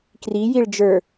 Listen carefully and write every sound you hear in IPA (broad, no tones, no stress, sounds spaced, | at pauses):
k r i j i ɭ d͡ʒ ə˞